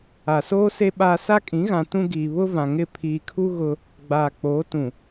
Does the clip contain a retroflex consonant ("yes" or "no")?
no